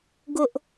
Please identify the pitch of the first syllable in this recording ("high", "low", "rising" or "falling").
high